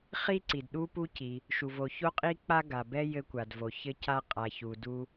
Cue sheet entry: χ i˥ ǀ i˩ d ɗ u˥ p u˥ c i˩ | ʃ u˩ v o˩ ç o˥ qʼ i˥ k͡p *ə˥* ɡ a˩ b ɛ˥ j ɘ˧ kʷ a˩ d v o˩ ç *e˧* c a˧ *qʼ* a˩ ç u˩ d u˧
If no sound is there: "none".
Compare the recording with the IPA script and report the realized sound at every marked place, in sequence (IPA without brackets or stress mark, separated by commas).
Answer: a˥, ɘ˧, qʼ